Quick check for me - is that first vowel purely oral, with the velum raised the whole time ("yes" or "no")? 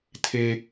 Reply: yes